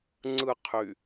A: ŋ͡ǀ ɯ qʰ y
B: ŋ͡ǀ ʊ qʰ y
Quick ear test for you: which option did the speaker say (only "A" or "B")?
A